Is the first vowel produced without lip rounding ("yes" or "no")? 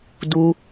no